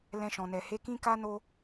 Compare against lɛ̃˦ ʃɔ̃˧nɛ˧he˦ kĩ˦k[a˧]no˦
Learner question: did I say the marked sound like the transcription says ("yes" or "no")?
no